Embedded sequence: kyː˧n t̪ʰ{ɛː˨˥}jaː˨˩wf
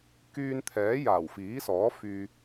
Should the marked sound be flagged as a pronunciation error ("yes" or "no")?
no